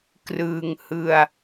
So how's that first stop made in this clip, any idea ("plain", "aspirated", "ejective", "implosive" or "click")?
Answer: plain